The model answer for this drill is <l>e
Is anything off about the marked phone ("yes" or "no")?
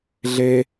yes